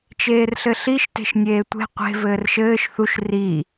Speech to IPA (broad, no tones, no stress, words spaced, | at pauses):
t͡ʃeːrɬɘɬiʃ te̤ʃnʲeːtʷe̤ qʷe̤ vɘːrʃɘːʃ θuʃ ri